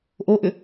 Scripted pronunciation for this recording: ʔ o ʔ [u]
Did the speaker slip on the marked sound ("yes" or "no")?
yes